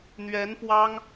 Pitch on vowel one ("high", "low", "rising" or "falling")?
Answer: rising